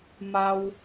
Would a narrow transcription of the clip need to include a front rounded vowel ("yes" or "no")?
no